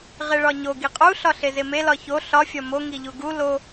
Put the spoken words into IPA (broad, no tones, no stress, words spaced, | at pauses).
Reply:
ʁeɭɒɲo ɡiqʼu ɬɒɬezeme lɒço ɬɒ fʲɒmo ŋiʎuɡu lo